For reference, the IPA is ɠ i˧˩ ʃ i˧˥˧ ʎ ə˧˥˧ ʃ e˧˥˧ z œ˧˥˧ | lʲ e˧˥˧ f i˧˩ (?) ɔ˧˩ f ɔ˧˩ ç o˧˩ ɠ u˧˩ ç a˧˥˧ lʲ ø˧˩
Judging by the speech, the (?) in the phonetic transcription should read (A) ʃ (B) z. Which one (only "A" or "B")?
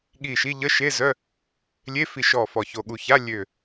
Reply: A